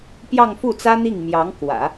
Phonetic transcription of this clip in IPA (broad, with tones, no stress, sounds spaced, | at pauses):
p j ɑ˥˧ ŋ f u˥˩ t͡s ä˥ n̪ i˥˩ ŋ m j ɑ˧˥ ŋ k w ä̰˨˩˦